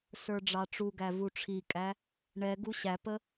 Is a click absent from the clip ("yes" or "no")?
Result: yes